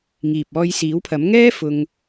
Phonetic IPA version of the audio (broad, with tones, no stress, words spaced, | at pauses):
ŋiː˨p̚ɔː˧j siː˨˥wpʰɐ˨˥m ŋɛː˥ fʊ˧ŋ